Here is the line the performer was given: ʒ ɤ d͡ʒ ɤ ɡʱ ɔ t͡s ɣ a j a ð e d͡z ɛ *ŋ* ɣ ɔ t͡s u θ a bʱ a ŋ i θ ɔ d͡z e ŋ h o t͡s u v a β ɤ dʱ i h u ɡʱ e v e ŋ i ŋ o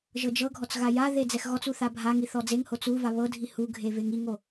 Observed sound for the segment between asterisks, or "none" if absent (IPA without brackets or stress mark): x